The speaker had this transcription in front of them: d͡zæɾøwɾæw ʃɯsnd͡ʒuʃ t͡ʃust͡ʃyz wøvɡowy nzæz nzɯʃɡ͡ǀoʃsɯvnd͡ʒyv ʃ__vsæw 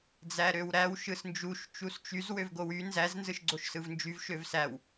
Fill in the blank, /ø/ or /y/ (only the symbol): ø